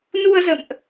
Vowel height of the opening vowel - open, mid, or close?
close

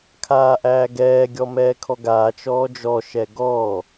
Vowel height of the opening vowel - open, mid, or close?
open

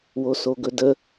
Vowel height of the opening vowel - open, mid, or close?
mid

